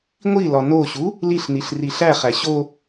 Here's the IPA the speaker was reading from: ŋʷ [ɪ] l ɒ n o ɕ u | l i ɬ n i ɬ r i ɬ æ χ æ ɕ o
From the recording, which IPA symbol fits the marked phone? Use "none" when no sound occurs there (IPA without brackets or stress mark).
i